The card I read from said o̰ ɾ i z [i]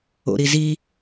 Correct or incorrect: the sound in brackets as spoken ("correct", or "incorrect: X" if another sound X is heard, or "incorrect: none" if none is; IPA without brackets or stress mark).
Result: correct